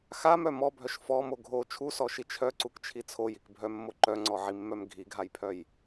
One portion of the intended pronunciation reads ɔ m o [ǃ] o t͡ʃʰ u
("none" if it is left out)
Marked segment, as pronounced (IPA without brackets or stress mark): ɡʱ